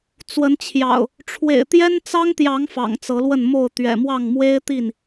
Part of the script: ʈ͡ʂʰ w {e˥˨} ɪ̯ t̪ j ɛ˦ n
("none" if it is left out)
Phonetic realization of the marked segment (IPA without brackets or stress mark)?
ḛ˨˩